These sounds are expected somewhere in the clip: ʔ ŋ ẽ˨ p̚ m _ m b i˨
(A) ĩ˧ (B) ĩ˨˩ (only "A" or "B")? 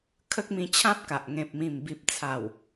B